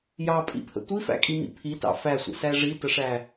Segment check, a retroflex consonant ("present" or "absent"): present